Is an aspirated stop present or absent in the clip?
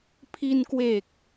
present